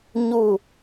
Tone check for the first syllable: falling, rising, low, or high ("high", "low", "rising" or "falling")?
falling